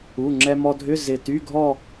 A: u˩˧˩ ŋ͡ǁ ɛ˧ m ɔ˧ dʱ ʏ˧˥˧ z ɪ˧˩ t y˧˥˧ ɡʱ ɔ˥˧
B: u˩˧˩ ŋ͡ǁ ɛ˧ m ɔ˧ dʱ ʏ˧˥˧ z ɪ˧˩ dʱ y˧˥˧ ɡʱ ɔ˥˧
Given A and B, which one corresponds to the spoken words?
A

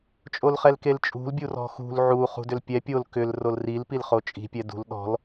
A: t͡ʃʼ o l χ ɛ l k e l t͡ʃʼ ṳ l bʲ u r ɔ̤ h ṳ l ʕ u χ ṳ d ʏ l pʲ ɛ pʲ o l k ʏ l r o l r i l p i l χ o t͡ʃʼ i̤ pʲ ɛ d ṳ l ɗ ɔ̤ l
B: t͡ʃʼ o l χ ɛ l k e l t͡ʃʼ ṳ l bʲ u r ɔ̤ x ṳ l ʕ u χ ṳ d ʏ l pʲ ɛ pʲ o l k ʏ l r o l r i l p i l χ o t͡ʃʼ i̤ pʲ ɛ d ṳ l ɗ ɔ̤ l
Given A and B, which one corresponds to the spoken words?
B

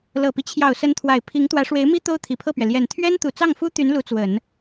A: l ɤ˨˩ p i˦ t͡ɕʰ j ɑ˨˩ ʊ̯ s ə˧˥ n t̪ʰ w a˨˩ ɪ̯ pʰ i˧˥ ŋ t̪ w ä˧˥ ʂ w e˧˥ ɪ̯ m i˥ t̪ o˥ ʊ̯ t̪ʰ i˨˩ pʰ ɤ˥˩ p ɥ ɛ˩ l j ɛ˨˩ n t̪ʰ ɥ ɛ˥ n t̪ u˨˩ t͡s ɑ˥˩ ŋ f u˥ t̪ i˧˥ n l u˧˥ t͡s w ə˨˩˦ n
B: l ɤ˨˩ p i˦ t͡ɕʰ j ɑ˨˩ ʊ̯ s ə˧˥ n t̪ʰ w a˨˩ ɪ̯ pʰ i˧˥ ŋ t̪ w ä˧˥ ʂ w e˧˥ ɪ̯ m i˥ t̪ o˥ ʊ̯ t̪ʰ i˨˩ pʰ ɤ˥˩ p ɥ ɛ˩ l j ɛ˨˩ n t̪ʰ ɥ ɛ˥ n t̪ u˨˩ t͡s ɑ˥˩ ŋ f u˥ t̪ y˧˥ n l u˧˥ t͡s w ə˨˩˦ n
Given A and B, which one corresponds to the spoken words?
B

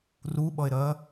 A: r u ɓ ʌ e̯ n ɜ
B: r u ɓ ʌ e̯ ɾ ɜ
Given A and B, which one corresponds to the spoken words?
B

